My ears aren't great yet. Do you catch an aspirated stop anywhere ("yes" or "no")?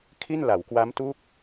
yes